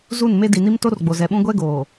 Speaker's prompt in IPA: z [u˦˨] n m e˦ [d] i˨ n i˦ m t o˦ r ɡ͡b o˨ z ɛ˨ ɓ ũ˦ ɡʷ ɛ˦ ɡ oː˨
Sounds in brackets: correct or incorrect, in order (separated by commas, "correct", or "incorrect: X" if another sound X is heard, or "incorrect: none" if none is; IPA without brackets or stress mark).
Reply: correct, correct